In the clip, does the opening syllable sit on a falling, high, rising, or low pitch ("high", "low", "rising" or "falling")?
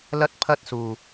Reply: high